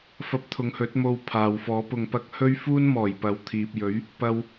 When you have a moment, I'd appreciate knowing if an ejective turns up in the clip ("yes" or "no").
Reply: no